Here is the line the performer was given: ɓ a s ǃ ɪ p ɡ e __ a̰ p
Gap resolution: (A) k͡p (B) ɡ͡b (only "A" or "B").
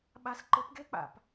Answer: A